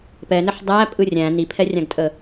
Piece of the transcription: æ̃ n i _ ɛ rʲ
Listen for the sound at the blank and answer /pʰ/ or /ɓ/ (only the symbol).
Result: pʰ